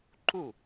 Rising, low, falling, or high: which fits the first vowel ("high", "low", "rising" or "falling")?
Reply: falling